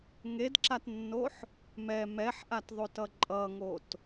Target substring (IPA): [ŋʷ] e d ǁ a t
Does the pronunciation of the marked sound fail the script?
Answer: yes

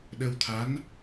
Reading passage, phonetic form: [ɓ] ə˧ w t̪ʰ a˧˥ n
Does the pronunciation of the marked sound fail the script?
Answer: yes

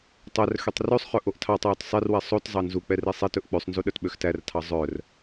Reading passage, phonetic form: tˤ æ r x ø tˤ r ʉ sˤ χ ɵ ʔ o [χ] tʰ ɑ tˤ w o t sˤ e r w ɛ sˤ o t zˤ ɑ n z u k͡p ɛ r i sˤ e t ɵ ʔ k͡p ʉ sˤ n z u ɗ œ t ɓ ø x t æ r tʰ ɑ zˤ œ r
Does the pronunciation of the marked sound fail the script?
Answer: yes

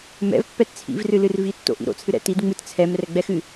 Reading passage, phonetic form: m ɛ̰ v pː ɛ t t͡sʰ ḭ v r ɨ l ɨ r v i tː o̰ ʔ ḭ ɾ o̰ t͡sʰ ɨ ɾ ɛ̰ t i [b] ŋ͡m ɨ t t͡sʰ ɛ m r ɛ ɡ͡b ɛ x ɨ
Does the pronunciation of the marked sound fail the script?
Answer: yes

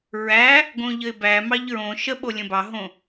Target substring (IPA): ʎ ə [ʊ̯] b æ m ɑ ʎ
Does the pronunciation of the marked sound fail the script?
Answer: yes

